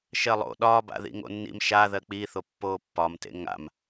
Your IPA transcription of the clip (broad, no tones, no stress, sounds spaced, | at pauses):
ʃ ɜ lˠ o̰ ɗ ɒː b a̰ ð ḭ ŋ o̰ nː ḭ m ʃ a ð ɜ k͡p i θ o pː oː pː ɒ m t ḛ ŋ a̰ m